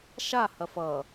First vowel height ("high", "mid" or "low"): low